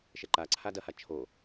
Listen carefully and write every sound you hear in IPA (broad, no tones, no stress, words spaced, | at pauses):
ʃɛǃaǀʰa dɐha t͡ʃʰo